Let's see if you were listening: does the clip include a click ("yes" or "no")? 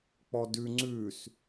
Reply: yes